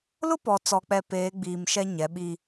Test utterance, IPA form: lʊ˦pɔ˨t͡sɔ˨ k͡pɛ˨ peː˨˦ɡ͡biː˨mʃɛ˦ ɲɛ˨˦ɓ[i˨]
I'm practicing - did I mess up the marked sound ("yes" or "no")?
yes